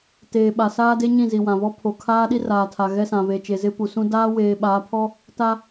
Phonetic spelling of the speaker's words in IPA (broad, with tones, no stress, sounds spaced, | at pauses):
t eː˨ ɓ a˨ s aː˦ d e˦ ɲ ĩ˦˨ z i˨ w ã˨ β ɔ˦ pʰ o˨ kʰ aː˦ ɗ i˦ r aː˨ tʰ a˨ ɣ ɛ˦ s ã˨ β e˨ t͡ʃ e˨ z ɪ˦ p u˨ s ũ˦ d aː˦ w eː˨ ɓ aː˨˦ pʰ ɔ˦ | t a˦